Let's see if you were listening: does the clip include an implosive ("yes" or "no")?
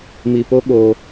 yes